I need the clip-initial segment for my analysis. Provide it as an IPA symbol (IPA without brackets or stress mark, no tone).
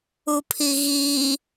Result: u